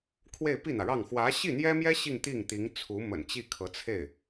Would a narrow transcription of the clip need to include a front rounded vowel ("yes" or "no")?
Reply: no